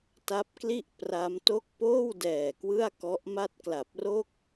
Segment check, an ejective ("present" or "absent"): absent